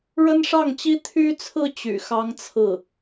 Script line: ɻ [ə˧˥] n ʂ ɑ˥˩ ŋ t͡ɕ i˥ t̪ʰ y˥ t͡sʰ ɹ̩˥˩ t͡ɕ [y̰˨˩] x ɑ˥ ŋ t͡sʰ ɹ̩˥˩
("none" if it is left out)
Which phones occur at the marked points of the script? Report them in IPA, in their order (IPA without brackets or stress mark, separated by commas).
ə˥, y̰˨˩